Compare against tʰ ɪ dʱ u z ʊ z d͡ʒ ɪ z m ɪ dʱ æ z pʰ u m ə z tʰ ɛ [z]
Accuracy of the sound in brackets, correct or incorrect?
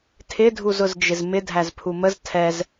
correct